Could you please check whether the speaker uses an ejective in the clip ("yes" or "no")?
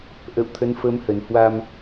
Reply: no